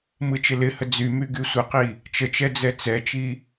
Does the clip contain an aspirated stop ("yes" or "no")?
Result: no